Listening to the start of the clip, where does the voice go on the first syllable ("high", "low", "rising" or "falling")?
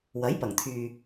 rising